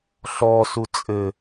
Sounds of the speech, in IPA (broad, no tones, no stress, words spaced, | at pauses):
ɬɔsu t͡sʼɘ